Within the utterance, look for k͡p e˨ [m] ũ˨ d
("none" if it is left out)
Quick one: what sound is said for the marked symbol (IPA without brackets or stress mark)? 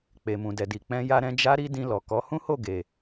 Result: m